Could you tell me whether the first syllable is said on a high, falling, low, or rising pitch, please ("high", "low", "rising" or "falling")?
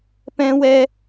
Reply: high